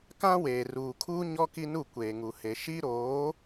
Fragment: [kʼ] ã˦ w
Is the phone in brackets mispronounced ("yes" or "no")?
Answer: yes